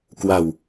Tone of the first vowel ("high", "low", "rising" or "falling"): low